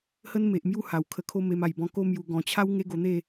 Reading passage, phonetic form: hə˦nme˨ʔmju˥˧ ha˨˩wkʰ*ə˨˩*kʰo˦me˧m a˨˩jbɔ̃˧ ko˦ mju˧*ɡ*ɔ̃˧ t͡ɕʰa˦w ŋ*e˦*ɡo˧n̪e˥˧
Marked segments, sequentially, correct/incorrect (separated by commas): incorrect, correct, correct